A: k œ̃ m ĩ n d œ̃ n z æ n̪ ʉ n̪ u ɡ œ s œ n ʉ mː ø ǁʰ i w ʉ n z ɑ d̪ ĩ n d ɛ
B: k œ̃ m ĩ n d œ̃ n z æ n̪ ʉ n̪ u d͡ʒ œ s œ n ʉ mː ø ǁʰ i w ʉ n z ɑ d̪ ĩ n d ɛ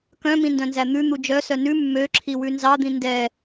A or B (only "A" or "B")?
B